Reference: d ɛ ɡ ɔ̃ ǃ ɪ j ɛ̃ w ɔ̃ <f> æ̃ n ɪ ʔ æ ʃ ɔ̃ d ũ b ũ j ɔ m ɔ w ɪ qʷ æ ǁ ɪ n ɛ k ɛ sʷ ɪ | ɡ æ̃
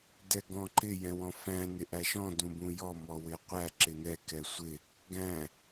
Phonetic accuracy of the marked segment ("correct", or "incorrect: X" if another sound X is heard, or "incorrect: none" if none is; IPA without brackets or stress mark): correct